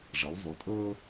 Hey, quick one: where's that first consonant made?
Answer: retroflex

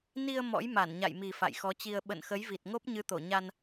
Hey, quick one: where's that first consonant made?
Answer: tongue tip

